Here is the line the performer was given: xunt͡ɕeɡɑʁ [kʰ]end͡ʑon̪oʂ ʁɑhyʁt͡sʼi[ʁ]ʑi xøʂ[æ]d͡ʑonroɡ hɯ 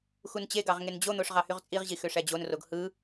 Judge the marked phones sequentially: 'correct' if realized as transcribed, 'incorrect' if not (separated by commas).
incorrect, correct, correct